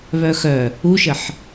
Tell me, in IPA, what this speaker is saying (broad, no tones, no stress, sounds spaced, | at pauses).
β œ x œ | u ʃ ə ħ